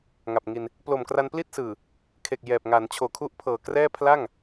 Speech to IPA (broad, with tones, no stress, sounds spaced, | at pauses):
ŋ a˨˩ p̚ ŋ i˧ n | p l o˨˩ m k r a˧ n p l i˥˩ t̚ s ɯː˨˩ | kʰ e˨˩ k̚ j ɛː˨˩ p̚ ŋ a˩˦ n t͡ɕʰ oː˨˩ kʰ u˦˥ ʔ pʰ ɤː˨˩ k r ɛː˥˩ pʰ l a˥˩ ŋ